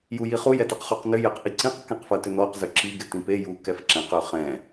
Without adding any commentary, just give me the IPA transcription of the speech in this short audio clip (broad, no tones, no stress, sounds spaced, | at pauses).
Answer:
j u j i χ u j ɛ t ɪ q χ u q n ʏ j ɛ q ʔ i ǀ ĩ q k ɛ̃ q f ɐ t ʏ n ɔ q z ø ǁ i ɡ ɪ t ĩ p e j u k ɛ f ǁ ɛ̃ q ø χ ɛ̃